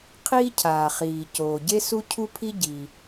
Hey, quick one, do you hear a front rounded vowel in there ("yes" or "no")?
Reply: no